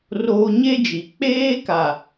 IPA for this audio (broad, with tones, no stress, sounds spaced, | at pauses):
r oː˦ ɲ e˦ d͡ʒ i˨ k͡p eː˦ k a˨